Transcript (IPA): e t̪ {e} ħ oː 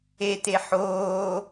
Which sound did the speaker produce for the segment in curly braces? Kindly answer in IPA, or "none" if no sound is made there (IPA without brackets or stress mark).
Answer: e